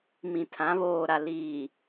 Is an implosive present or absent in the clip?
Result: absent